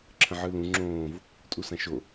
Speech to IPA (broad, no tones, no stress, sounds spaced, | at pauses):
ǁʰ ə̃ ʕ ɯ l ũ ŋ͡ǁ õː v | tʼ u s ã ʃ o